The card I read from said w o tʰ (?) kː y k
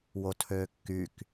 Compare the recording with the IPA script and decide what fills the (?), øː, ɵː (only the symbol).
øː